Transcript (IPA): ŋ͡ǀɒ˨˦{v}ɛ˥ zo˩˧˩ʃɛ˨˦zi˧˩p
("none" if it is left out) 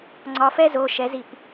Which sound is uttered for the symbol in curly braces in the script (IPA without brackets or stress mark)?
f